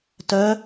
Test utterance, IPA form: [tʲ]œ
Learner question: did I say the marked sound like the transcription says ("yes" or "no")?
no